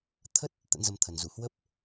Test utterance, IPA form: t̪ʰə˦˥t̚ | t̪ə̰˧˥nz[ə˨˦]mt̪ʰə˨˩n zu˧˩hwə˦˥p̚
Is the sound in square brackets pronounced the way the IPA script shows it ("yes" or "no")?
no